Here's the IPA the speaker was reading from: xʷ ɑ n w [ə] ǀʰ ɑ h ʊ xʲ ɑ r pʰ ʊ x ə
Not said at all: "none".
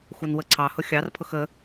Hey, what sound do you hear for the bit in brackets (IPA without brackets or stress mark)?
ə